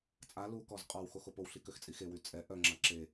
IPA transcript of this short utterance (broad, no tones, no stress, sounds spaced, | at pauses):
t͡sʼ a l u k ɔ z qʼ ɔ w x o x o p o w ɬ i k ø x t͡sʼ i x e w y t͡sʼ ɛ ʔ œ ŋ͡ǁ a ǁ e